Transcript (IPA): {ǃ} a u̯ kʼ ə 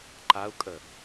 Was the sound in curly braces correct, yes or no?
yes